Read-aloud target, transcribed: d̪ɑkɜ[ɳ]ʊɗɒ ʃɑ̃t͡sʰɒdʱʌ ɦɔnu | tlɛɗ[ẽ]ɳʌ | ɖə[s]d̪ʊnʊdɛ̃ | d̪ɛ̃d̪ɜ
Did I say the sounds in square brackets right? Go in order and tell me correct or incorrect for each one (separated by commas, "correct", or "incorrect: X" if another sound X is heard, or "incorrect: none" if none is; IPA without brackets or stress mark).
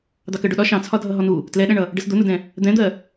incorrect: ɖ, incorrect: ɛ̃, correct